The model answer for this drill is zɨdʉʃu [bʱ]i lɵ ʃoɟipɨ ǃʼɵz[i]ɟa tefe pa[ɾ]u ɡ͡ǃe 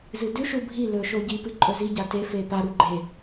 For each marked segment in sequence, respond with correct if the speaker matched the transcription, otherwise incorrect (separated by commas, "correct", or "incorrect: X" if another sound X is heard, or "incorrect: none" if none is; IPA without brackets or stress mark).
correct, correct, correct